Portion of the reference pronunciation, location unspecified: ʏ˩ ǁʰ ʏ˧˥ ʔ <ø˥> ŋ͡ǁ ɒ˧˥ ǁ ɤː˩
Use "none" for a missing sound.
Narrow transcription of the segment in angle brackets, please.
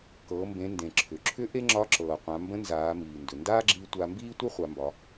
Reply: e˥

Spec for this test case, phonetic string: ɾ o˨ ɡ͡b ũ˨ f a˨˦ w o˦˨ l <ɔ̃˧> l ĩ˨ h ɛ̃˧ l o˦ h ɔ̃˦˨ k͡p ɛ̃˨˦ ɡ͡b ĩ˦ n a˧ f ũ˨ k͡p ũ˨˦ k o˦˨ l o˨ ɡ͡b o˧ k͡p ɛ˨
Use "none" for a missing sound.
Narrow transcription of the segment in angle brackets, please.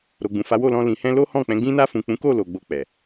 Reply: ɔ̃˧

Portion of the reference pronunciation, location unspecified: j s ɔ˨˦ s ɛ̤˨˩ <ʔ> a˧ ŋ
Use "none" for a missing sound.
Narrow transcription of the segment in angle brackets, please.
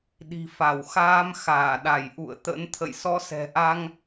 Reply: ʔ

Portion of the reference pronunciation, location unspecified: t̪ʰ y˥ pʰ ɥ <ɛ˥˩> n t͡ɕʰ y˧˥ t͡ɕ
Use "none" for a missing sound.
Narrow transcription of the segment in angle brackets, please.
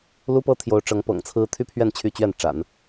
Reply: ɛ˥˩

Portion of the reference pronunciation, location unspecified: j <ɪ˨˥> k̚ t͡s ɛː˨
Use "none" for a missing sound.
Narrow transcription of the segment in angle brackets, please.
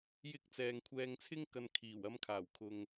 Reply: ɪ˧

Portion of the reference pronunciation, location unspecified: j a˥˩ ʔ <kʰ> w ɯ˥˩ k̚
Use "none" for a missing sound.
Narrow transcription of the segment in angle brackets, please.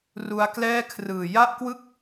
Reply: k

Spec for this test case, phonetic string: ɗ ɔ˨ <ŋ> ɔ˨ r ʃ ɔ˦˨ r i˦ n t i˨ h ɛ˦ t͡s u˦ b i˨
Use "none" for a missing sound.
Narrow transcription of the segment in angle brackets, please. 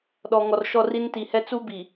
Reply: ŋ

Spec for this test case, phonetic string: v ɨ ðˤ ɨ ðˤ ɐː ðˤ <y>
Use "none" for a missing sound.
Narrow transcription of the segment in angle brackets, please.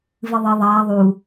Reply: u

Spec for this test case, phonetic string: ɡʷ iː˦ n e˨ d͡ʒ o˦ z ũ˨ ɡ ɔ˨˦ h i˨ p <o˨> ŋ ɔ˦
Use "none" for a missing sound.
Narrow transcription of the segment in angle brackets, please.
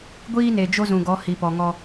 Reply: ɔ˨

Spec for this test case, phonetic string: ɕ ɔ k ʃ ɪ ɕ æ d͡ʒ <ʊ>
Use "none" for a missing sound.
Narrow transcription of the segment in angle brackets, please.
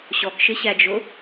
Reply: ʊ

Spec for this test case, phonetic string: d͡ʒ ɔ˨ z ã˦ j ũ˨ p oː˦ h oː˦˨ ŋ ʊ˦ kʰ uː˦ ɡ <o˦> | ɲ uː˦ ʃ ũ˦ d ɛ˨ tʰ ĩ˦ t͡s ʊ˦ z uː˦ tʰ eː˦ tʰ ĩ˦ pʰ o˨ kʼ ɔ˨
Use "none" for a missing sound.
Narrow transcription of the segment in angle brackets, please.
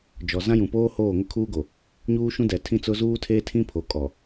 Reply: o˨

